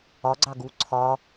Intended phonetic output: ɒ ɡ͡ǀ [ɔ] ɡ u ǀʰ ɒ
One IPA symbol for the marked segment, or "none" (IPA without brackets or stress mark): ɑ